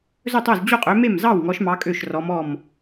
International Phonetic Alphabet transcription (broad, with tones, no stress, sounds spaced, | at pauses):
z ɵ˥˩ tˤ o˥˩ z d͡ʑ o˥˩ qʼ ø˨˦ m e˥˩ m z ɑ˥˩ w ŋ ɔ˨˦ ʃ m ɑ˨˦ kʼ ø˥˩ ʃ r ɔ˨˦ m ɔ˥˩ m